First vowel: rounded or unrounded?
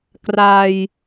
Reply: unrounded